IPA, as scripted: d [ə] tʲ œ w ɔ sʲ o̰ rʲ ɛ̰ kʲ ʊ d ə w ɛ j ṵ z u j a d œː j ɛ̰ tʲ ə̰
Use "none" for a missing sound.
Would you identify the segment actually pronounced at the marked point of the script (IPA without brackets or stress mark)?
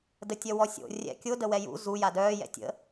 ə